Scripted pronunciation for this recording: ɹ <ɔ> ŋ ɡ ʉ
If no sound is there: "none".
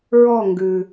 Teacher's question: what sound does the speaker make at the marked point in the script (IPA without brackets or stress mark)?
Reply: ɔ